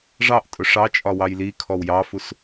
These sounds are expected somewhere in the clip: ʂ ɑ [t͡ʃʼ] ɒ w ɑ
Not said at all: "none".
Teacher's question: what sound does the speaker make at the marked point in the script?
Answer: t͡ʃʼ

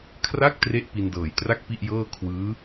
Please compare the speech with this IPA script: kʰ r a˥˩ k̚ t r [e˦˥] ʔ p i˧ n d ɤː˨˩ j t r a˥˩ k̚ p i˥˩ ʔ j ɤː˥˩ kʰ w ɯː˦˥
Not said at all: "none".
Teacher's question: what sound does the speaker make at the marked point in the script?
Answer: e˦˥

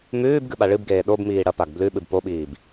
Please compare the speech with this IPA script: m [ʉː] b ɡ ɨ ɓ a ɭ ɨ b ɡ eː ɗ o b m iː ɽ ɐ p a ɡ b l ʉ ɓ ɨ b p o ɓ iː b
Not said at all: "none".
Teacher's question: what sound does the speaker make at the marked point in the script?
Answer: ʉː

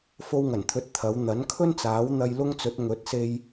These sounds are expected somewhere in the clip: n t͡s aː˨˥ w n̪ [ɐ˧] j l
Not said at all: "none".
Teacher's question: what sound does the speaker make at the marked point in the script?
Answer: ɐ˧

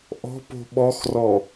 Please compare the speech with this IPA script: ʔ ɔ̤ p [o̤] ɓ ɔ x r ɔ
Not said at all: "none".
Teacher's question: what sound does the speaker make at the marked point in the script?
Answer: o̤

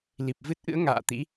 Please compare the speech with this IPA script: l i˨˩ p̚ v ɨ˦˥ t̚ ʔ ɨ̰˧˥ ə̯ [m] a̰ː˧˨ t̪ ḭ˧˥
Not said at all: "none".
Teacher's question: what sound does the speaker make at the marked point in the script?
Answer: ŋ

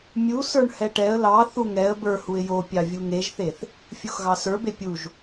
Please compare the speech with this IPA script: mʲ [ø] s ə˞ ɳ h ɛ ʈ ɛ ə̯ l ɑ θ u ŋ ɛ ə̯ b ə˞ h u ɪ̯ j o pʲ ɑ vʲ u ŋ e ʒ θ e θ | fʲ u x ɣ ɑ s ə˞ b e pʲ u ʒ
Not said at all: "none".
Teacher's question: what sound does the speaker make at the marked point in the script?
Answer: u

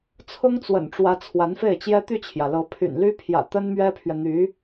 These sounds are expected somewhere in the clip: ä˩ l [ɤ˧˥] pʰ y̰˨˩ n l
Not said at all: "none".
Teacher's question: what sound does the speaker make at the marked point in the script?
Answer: ɤ˧˥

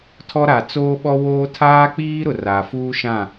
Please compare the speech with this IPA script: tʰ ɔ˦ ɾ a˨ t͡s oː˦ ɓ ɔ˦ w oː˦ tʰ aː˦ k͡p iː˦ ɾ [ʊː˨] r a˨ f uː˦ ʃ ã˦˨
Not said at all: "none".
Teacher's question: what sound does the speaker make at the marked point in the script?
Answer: ʊ˨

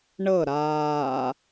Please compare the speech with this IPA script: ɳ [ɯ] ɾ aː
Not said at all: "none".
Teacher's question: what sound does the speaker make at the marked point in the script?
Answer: ɤ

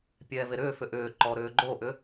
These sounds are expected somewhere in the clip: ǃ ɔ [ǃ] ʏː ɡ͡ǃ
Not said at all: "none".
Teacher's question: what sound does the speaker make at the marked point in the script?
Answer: ɾ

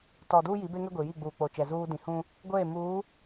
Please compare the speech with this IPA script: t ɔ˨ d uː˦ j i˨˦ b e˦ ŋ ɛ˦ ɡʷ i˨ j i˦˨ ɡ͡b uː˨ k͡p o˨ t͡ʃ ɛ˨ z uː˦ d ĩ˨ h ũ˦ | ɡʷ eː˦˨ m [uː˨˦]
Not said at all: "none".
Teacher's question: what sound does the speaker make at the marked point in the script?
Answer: uː˨˦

